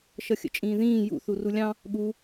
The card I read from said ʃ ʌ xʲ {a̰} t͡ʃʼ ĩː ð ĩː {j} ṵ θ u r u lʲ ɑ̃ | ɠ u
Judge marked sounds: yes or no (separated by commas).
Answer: no, yes